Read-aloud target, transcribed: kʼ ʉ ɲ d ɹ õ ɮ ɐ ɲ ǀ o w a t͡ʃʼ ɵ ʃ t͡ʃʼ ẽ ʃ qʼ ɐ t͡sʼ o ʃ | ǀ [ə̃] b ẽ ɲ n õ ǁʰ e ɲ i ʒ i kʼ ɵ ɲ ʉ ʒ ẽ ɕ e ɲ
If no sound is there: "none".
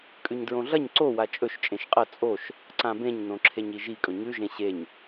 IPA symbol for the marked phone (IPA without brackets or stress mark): ã